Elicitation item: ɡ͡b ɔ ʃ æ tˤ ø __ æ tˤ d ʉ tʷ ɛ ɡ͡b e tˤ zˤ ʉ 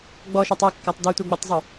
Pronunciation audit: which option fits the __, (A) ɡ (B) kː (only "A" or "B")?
B